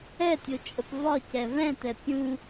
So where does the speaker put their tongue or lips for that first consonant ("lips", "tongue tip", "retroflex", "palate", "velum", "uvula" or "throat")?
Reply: tongue tip